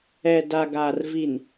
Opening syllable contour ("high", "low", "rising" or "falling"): low